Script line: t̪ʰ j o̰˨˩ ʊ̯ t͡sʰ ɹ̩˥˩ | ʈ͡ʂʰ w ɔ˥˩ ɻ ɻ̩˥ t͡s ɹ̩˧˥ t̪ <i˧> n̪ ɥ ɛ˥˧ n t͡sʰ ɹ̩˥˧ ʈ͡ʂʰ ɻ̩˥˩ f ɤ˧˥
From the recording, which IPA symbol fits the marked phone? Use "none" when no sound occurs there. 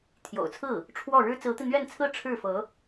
i˧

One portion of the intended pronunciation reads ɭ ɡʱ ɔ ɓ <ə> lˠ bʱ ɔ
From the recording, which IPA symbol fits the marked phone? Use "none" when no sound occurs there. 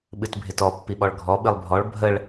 ɨ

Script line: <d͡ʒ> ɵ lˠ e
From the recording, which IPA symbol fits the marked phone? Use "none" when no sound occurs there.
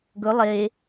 ɡ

